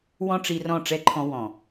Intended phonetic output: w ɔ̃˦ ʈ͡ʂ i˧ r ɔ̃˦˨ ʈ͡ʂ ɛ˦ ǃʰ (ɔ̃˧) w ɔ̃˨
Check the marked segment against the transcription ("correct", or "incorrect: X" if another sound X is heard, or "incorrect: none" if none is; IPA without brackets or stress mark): correct